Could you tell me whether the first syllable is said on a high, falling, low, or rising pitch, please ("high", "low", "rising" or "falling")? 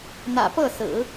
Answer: low